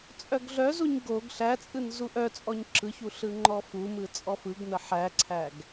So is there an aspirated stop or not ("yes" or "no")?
yes